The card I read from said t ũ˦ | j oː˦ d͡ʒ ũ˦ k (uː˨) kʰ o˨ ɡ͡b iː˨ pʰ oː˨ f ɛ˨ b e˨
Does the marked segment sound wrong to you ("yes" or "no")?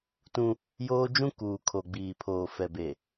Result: no